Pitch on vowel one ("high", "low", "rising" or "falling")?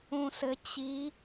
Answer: low